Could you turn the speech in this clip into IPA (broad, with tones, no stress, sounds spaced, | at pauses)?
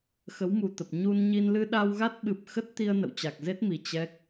x ə˨˦ w m u˨˩ t̪ ə˨˩ p̚ ɲ u˧ n ɲ i˧ n l ɨ˧ ɗ a˧ w ɣ a˦˥ t̚ ɓ ɨ˨˩ p̚ x ə˦˥ t̚ t̪ i˧ ə̯ n ə̰˧˨ w t͡ɕ a˨˩ k̚ z e˦˥ t̚ m i˨˩ t͡ɕ ɛ˦˥ k̚